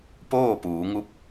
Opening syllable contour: falling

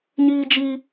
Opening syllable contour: high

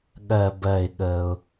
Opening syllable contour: low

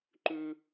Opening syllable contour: high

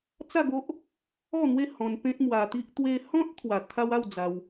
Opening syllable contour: falling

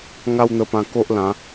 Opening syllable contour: high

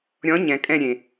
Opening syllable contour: rising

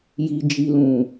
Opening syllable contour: low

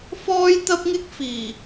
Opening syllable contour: high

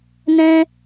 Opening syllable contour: high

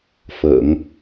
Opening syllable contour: low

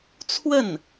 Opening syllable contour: falling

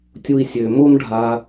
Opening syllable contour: low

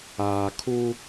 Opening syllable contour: low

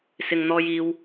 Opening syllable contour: low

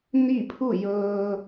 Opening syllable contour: falling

